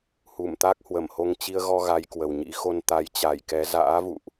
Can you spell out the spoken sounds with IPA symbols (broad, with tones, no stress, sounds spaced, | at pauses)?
h u˧˩ m t̪ a˦˥ k̚ h w ə˧˩ m h o˧ ŋ t͡ɕ i˧ ə̯ ɣ ɔ˧ ɣ a˨˦ j k w ə˨˩ w ɲ ḭ˧˥ x o˧ n t̪ a˨˦ j t͡ɕ a˧˩ j k ɛ˨˦ z a̰ː˧˥ v ṵ˧˨ ʔ